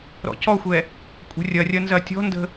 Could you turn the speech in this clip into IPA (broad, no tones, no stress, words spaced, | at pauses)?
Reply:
ɾɔ̰cɔxʷɛ | kʷʼə̤rʲɐrʲɐ nzɐtʲɔ̤ndə̤